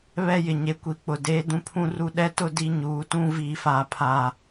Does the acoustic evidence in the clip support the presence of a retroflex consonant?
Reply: no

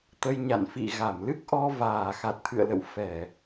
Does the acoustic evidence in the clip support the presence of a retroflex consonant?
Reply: no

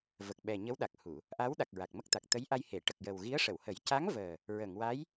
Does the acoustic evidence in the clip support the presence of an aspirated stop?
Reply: no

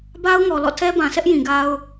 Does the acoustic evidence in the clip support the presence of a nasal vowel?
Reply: yes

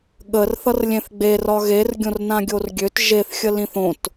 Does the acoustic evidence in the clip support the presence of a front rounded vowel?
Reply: yes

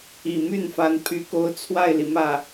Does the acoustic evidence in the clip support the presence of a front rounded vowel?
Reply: yes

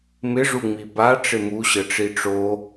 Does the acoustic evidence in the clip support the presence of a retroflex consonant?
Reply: yes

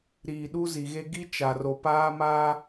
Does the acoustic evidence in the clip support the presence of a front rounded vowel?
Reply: no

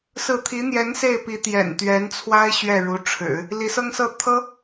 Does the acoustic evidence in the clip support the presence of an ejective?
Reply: no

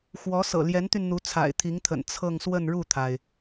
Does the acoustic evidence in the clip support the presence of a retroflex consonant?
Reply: yes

